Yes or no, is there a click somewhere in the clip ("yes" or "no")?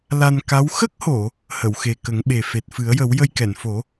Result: no